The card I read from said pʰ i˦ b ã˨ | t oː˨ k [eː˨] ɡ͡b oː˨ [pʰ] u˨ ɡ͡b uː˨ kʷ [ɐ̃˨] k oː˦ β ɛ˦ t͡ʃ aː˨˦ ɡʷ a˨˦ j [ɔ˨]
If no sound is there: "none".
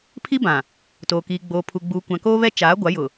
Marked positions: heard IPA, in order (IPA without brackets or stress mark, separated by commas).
iː˨, pʰ, ã˨, ʊ˨